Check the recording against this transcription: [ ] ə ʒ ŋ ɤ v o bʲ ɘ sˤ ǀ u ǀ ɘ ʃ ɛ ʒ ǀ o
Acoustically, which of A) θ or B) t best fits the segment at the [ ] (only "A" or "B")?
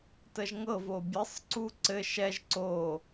B